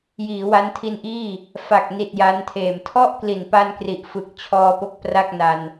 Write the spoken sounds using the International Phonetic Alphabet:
jiː˩˦wa˦˥ntʰi˧nʔiː˥˩ | fa˨˩k̚ni˨˩t̚ ja˦˥ntʰeː˨˩m tʰɔ˥˩ʔkli˨˩npa˧nkri˨˩ʔ fɯ˨˩k̚t͡ɕʰɔː˧po˦˥k̚ pra˥˩k̚na˧n

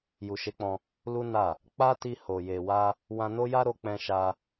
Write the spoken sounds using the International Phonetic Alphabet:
ju˨ʃe˨˦k͡pɔ̃˧ | lu˦na˦˨ | k͡pa˦ti˧ ho˨je˨wa˧ | wã˧no˦ja˦ ɾo˧k͡pɛ̃˧ ʃa˧

